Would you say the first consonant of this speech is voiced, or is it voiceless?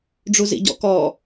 voiced